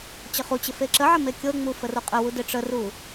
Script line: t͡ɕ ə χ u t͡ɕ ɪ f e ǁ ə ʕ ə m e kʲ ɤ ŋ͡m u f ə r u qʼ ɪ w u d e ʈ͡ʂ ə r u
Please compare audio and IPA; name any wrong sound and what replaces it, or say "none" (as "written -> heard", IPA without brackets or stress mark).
none